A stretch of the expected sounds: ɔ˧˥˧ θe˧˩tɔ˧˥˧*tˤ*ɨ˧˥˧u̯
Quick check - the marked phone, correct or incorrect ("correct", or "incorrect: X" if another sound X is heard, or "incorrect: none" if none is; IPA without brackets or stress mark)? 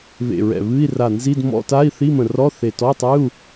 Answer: correct